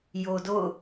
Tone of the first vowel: low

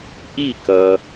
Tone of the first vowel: falling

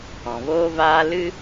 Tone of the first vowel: low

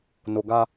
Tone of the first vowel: low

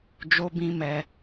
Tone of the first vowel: high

